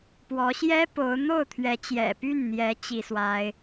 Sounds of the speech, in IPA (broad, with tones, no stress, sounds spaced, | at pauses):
p w ɔ˧˥ ɕ j ɛ˥ p o˧˥ ʊ̯ n̪ o˥˩ ʊ̯ t̪ʰ ɥ ɛ˧˥ t͡ɕ j ɛ̰˨˩ p y˥˩ n n̪ j ɛ˧˥ t͡ɕ i˥ s w a˥ ɪ̯